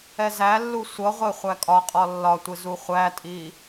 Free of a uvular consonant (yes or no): no